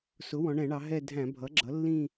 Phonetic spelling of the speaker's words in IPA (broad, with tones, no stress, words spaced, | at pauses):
sʊ˩˥wɔ̃˩˧ɳɛ̃˧˩˧ɳɑ˩˧ ɦɛ˥˧ dʱæ̃˧˩˧ bʱʌ˩˥ɡ͡ǁʌ˩˥lːĩ˥˧